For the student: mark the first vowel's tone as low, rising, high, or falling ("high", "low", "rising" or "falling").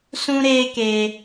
high